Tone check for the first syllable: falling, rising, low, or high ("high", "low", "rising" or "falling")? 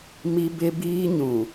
high